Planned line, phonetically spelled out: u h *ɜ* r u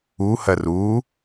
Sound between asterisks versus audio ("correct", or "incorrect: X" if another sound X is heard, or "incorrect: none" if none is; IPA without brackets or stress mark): correct